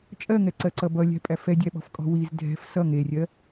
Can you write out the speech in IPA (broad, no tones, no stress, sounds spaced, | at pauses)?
t͡ʃʼ ɜ ŋ ɛ ǀ ɜ ǀ ʌ b ʌ lʲ æ̤ pʼ æ f ɛ dʲ æ ɓ ɔ̤ f kʼ ɔ̤ w i z dʱ ɛ̤ f s ʌ ŋ e rʲ ɜ